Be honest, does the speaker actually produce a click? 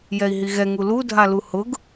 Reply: no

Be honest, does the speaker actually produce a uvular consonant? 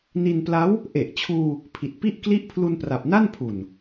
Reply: no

